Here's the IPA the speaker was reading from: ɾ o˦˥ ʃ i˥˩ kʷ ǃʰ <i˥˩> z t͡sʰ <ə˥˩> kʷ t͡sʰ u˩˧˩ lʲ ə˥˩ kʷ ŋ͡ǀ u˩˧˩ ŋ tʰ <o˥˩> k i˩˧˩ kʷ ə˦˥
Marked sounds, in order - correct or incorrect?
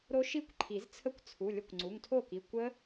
incorrect: i˨˩˦, correct, correct

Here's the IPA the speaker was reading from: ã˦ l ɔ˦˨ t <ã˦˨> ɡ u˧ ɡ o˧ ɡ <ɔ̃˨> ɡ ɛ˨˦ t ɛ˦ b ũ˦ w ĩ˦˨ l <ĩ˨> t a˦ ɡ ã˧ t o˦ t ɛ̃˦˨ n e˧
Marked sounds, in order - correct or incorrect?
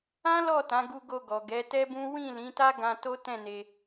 incorrect: ã˨˦, incorrect: ɔ˨, incorrect: ĩ˨˦

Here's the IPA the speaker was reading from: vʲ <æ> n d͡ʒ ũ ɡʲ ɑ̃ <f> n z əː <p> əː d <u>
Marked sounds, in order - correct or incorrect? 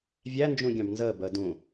correct, incorrect: b, incorrect: b, incorrect: ũ

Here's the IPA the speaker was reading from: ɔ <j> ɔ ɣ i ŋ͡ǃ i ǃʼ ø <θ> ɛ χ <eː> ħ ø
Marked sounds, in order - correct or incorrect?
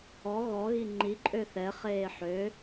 incorrect: ɣ, correct, correct

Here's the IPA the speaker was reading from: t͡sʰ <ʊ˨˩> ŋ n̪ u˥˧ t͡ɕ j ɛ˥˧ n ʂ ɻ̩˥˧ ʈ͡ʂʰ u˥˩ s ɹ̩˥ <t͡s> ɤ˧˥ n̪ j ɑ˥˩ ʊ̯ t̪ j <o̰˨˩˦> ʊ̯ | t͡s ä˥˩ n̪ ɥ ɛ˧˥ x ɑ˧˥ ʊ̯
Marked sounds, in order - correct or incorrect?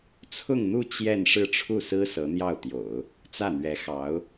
incorrect: ʊ˥˧, incorrect: s, correct

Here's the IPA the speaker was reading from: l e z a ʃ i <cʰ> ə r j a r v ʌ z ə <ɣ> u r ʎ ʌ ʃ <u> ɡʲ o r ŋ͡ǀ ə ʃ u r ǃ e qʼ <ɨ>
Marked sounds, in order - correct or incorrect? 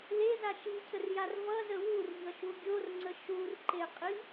correct, incorrect: w, correct, incorrect: i

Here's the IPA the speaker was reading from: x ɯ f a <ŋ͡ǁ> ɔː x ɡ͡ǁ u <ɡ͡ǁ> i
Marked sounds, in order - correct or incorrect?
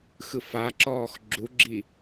incorrect: ǁ, correct

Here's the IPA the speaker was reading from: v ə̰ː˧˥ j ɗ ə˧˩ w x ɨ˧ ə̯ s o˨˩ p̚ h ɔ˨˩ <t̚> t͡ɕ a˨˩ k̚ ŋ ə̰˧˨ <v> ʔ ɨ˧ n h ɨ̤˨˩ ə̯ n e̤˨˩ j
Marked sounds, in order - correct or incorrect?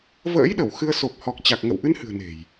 incorrect: k̚, incorrect: w

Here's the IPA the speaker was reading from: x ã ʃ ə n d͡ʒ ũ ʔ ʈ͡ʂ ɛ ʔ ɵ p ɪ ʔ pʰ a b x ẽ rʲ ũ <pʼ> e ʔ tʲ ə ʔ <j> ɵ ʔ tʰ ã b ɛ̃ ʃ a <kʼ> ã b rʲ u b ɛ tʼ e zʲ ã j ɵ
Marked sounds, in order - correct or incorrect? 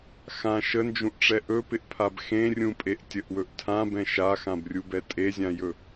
correct, incorrect: w, incorrect: x

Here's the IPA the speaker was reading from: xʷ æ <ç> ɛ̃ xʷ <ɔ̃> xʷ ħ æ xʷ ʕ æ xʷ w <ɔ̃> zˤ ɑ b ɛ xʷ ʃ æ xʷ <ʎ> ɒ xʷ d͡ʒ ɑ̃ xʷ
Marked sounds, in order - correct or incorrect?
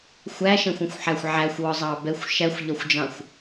incorrect: ʃ, correct, incorrect: ɔ, correct

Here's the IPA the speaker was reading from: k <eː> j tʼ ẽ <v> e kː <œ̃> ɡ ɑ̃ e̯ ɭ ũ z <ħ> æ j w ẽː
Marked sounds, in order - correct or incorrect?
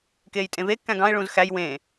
correct, correct, incorrect: æ̃, incorrect: x

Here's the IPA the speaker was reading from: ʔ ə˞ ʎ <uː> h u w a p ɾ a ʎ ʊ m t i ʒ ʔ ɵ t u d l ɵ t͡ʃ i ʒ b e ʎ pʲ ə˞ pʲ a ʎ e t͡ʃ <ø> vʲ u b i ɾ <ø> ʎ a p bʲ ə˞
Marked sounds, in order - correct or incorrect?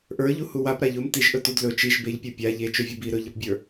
incorrect: u, correct, incorrect: ɵ

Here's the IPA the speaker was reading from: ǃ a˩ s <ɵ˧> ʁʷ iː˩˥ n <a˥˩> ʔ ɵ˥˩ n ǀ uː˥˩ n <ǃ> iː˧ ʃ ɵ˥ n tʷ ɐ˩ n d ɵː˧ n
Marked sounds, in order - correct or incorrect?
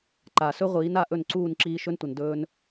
correct, incorrect: a˧, incorrect: ǁ

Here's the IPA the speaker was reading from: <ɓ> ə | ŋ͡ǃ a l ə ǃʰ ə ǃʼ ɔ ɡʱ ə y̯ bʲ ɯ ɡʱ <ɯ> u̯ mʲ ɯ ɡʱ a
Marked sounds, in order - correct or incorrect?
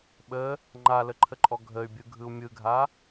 correct, correct

